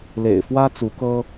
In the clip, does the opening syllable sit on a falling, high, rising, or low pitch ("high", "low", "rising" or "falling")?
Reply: low